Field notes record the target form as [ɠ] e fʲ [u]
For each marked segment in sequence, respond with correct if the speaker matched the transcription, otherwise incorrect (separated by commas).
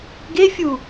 incorrect, correct